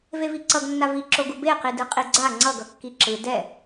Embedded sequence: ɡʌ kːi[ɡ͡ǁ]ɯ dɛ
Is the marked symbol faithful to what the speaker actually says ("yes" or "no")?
no